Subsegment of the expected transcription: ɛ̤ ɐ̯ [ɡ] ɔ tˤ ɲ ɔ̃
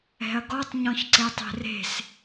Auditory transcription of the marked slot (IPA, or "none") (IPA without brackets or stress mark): ɡ